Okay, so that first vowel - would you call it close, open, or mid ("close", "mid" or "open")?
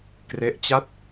mid